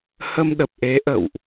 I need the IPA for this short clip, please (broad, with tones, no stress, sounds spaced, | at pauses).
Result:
h ə˧ m ɗ ə˨˩ p̚ ʔ e˨˦ ʔ ə̰˧˨ w ʔ